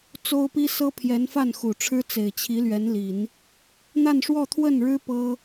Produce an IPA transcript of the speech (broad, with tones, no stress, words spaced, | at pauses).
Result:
t͡so˥ʊ̯pi˥sɤ˥pʰjɛ˧˥n fa˥˩nxu˨˩ʈ͡ʂʰɻ̩˥ t͡se˨˩ɪ̯t͡ɕʰi˧˥lɥɛ˧˥nli˨˩˦n | n̪a˥˧nʂwɔ˥˧t̪ʰwə˥˩nɻɻ̩˥ pɤ˥